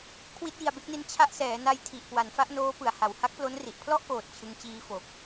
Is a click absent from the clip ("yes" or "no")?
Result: yes